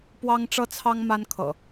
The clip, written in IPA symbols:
pwɑ˦ŋʈ͡ʂɤ˦t͡sʰɑ˦ŋ ma˦nkʰɤ̰˨˩

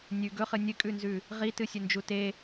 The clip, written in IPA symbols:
nʲʉ ɡɵχɨ nʲɨkʼʉnzʉ | ʁitɨsʲɵnd͡ʒu te

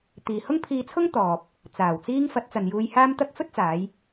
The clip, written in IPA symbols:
t̪iː˨hʊ˥ŋpʰiː˧t͡sʰʊ˥ŋ t̪ɔː˨p̚ | t͡saː˨˩wt͡siː˥ŋ fɐ˨˥t̚ t͡sɐ˨njuː˧jhaː˥mt̪ɐ˥k̚ fɵ˥t̚t͡saː˨˧j

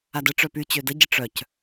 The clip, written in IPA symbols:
adə ʈ͡ʂœpy t͡ɕødə ɟəʈ͡ʂœc

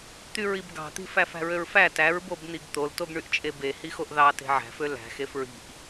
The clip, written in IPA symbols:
t̪yɹibɡɑ̤t̪i̤ fæfæ̤ɹøɹfæ tæɹbobn̪iɡ t̪oltoɡɳyʔt͡ʃʼe be hixoʔðɑ te̤ʕæ̤fø læ̤ xefɹi̤ʔ

